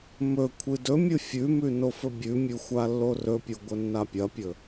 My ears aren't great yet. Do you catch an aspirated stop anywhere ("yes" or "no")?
yes